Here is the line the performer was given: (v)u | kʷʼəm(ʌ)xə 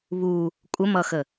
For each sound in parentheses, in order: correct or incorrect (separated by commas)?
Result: incorrect, correct